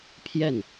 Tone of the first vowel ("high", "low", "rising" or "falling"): falling